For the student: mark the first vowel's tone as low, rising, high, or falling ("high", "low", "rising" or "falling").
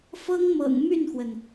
high